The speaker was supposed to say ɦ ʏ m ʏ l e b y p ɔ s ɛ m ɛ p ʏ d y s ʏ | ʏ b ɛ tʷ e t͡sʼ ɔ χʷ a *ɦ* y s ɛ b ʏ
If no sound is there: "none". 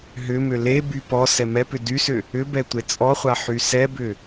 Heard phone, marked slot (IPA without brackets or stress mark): ħ